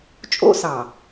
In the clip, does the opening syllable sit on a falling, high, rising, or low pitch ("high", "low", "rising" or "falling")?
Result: high